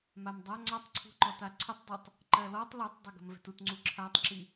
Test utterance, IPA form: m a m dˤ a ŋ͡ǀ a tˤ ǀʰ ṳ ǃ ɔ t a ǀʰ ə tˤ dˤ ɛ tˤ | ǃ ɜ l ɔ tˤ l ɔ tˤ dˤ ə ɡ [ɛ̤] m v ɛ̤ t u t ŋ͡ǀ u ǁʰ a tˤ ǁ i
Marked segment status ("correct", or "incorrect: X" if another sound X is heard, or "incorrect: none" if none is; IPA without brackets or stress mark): incorrect: ə̤